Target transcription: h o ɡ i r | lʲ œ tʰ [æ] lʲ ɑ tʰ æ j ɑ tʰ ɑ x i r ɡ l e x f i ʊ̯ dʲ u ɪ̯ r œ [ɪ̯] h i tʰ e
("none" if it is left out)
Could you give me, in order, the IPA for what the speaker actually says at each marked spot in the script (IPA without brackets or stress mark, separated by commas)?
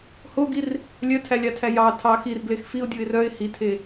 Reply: æ, ɪ̯